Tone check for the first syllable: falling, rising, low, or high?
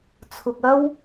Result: low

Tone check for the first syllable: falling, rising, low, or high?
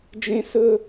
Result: high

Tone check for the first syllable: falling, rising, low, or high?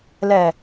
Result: low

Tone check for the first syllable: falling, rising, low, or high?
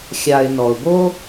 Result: low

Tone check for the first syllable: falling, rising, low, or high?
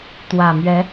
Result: low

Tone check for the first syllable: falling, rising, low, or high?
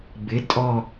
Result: rising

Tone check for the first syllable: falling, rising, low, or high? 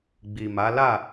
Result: low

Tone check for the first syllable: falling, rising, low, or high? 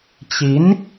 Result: rising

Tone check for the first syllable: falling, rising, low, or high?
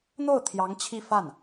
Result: falling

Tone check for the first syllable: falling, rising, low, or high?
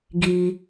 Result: high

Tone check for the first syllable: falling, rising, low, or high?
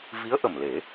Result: rising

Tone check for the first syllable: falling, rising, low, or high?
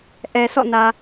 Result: low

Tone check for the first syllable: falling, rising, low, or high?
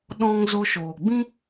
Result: high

